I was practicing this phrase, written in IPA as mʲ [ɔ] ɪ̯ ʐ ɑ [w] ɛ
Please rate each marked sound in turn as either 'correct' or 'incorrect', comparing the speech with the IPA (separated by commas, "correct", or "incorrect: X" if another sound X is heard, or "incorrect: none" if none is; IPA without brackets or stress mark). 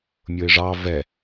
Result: incorrect: ʊ, incorrect: v